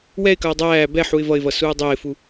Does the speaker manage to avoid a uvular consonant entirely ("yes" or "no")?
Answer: yes